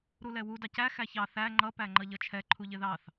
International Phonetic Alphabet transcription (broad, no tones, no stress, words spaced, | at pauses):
ɾulɛwu dɑcæ xæçɑ θæ ŋ͡ǃʌ pæŋ͡ǃʌʎʌt͡ʃʰɛ ǃʰuʎɪðɑθ